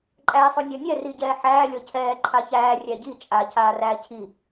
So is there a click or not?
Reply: yes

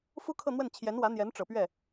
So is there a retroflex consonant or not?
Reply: yes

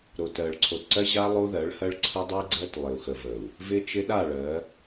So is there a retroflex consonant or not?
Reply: yes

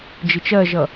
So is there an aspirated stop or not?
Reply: no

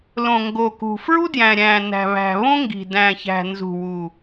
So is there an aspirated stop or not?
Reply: no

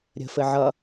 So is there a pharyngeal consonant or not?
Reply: yes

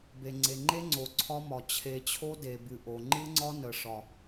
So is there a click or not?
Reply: yes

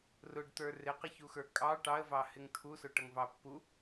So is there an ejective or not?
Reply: yes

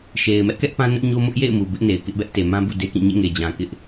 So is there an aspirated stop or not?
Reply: no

